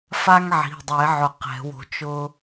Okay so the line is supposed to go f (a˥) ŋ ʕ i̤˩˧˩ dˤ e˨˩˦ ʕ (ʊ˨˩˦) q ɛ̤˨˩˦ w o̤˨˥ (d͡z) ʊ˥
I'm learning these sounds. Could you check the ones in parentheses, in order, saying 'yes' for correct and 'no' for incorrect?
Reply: yes, yes, no

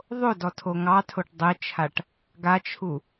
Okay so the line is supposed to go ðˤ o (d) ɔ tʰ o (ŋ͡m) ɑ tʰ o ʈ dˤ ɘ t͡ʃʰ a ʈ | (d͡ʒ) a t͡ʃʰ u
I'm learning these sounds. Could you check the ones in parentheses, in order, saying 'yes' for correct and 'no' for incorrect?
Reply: yes, no, no

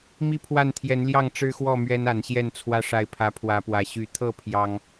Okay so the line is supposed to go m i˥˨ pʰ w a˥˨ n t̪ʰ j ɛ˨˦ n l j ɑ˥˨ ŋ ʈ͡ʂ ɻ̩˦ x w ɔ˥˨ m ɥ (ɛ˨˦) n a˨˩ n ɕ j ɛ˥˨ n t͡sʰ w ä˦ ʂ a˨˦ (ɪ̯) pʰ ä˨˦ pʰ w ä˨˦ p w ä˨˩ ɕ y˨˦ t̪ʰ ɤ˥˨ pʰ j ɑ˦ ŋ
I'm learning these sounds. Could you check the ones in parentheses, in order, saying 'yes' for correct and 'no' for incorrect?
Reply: no, yes

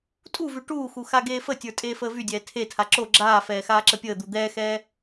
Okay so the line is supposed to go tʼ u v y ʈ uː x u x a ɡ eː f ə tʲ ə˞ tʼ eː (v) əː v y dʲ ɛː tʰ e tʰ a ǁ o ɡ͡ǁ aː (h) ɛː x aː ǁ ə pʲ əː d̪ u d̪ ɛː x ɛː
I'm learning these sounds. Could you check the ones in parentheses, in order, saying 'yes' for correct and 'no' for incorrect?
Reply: no, no

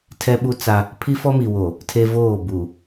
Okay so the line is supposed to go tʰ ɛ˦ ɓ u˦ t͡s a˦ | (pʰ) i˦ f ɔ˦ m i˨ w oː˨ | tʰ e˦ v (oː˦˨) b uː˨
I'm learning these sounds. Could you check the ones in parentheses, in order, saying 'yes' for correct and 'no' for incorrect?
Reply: yes, yes

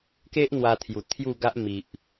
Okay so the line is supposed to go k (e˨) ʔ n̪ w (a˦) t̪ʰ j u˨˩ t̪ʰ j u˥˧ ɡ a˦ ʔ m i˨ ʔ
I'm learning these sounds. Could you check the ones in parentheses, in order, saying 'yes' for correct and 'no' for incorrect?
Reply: no, no

